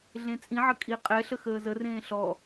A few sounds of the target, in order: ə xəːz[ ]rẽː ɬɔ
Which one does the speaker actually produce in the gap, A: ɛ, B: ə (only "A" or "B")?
B